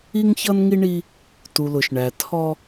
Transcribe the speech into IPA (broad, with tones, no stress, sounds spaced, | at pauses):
i˦ ŋ ç ʌ˦ n ŋ i˦ ɳ i˦ | t u˨ l ʊ˨ ʃ ɳ æ˨ tʰ ɔ˦